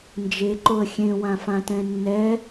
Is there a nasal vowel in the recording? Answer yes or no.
yes